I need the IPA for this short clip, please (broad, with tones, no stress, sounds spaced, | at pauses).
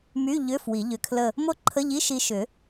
m y˧˥˧ ʎ ʏ˧˥˧ f w i˨˩˦ ʎ ʏ˧ kʰ l ə˥˧ | m o˥˧ ǃʰ ə˧˥˧ ʎ i˧˥˧ ʃ i˧ ʃ ʏ˨˩˦